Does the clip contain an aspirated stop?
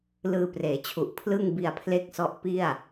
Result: yes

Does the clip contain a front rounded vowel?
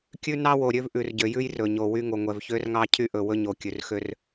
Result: yes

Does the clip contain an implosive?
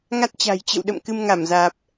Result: yes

